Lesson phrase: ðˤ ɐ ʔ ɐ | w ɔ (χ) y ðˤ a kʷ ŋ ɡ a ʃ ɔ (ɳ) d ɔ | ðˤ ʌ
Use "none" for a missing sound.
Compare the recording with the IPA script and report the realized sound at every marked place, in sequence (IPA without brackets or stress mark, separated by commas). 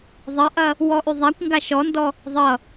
ʔ, n